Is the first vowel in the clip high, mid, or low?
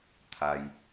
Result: low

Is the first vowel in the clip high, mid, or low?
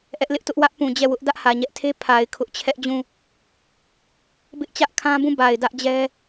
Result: mid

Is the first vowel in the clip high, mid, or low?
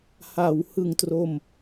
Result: low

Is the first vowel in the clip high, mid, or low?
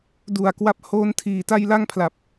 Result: high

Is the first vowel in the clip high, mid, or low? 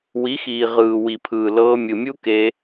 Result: high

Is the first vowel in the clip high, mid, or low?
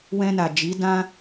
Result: mid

